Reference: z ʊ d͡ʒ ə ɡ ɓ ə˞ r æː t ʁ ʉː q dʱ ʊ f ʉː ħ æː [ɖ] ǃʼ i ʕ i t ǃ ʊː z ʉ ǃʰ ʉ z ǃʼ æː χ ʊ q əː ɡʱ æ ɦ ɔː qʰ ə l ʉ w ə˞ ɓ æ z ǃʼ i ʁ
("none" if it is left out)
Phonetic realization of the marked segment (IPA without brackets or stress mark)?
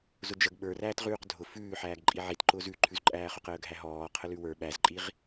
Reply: ɡ